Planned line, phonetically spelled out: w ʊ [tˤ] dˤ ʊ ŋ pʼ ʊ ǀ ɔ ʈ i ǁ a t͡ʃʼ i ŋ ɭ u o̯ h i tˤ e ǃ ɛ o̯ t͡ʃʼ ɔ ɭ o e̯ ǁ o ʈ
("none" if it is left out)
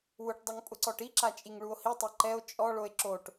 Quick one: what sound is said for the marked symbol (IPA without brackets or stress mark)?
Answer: ʈ